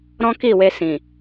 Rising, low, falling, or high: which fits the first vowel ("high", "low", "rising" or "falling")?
high